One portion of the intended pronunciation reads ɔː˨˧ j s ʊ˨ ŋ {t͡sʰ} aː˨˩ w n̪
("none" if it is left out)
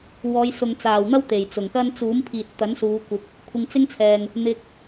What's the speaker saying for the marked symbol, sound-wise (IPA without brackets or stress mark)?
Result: t͡s